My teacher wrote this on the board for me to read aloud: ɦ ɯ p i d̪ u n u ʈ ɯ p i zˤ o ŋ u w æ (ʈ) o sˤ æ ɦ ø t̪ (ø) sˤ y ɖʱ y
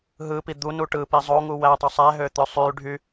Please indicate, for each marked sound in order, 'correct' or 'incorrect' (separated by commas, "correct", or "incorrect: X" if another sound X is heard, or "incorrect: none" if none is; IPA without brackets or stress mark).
incorrect: tˤ, correct